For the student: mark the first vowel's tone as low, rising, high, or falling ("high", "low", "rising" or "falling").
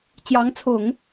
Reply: rising